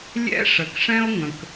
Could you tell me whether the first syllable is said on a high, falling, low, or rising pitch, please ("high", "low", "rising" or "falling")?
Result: high